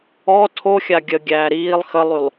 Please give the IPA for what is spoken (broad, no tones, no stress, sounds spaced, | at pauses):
ɔ tʰ o xʲ a ɡʲ ə ɡʲ æː ɾ iː lˠ x ə lˠ y lˠ